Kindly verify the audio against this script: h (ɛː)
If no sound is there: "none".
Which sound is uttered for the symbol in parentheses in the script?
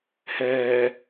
ɛː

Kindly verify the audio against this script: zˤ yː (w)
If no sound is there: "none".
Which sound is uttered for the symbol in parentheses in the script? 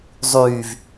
v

